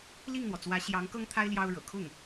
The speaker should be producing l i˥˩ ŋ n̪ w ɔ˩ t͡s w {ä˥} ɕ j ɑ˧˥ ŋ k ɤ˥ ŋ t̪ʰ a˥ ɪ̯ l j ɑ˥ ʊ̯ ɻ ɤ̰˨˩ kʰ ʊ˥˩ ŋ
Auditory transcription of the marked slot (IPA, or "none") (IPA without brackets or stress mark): ä˧˥